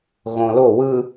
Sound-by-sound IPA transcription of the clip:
ɣ õ l o w ɯ

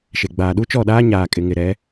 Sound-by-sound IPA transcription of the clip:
ʃ e˨ ɡ͡b aː˨ ɗ u˦ t͡ʃ ɔ˦˨ ɗ aː˦ ɲ aː˨ kʼ ɪ˨ ŋ ɪ˨ ɾ ɛ˨˦

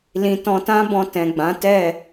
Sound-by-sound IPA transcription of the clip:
l ĩ˧ t ɔ̃˧ t ã˦ b ɔ̃˧ t ɛ̃˨ ɡ͡b ã˨˦ t ɛ˦˨

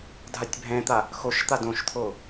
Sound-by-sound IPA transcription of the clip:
dʱ a tʲ bʱ ɛ̃ t̪ a | x o ʃ t̪ a d õ ʃ t̪ʰ o

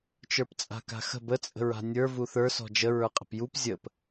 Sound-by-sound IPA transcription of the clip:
t͡ʃ ə˞ p t͡sʼ a̤ k a̤ x ə̤ b ə t͡sʼ ə̤ ɹ a̤ nʲ ə˞ v u θ ə˞ s ɔ̤ d͡ʒ ə ɹ ə˞ qʼ ə̤ p j u p zʲ ə p

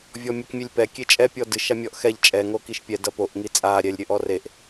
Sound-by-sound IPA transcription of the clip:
vʲ ɔ mʲ ɛ k mʲ e lʲ p ɛ kʲ e t͡ʃʼ ɛ pʲ ɔ d ɨ ʃ a mʲ ɔ ʔ x ɛ ʎ t͡ʃʼ ɛ ŋ o k i ʃ pʲ ɛ d ɐ p o ʔ ŋ i t͡sʼ a ɾʲ ɛ lʲ ɾʲ ɘ ʔ ɔ r e ʔ

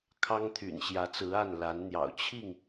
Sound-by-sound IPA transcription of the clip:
kʰ ɑ˦ ŋ t̪ʰ y̰˨˩ n ɕ j ä˨˦ t͡s ɹ̩˨˦ a˥˨ n l a˨˦ n n̪ j ɑ̰˨˩ ʊ̯ t͡ɕʰ i˥˨ ŋ

